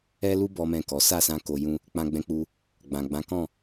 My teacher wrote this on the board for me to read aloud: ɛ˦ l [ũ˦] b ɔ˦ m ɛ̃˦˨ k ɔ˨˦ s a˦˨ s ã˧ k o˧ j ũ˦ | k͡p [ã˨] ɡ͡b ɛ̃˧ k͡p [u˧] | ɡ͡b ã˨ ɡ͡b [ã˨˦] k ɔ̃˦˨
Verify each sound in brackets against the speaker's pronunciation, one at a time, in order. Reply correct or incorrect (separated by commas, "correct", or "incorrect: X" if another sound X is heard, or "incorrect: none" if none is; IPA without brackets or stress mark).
incorrect: u˦, incorrect: ã˧, correct, correct